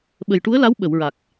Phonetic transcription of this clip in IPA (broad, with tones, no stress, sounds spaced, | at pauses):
ɓ ə˨˩ j ʈ u˧˥ ə̯ l a˧˥ w ɓ ə˨˩˨ w ɹ a˨˩ k̚